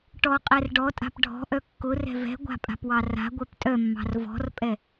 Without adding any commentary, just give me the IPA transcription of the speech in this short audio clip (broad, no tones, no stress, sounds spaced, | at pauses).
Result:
ʈ ɔ qʼ ɛ r ɖ ɔ tʼ a̤ p ɖʱ ɔ̤ ʔ œ kː ʊ r ɛ̤ v ɛ̤ ɡʷ a̤ pʼ a̤ p w ɑ r a̤ ɡʷ œ p tʼ œ mː ɑ̤ r v ɔ̤ r pʼ ɛ